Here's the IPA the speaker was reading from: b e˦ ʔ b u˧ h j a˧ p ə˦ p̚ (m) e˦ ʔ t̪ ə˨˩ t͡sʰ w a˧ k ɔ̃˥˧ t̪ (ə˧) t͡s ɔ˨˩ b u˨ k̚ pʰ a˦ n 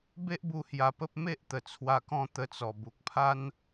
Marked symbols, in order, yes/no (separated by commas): yes, yes